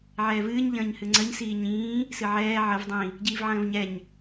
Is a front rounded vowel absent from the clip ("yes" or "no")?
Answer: yes